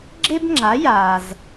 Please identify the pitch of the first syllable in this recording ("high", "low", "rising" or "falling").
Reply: high